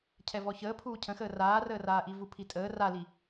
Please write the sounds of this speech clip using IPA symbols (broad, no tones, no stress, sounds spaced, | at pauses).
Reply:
cʰ ɛ v ɔ ç əː pʰ uː cʰ ə̃ x əː r aː r əː r aː ʔ i v u pʰ i tʼ əː r a l i